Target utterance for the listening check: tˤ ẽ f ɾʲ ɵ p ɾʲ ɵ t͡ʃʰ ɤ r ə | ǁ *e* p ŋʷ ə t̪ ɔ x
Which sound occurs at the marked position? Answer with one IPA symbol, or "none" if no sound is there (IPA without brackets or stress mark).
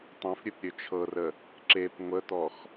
e